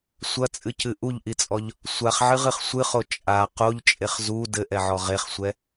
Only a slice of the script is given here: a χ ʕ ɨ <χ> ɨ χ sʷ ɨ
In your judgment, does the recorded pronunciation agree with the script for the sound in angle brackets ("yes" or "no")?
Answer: no